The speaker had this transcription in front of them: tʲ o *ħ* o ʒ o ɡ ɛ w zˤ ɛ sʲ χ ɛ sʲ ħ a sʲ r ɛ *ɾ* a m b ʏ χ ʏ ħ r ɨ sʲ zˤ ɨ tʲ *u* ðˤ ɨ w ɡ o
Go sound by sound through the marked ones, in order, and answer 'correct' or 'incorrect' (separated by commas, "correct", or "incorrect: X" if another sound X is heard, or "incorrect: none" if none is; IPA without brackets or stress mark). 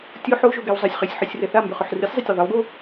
correct, incorrect: θ, incorrect: o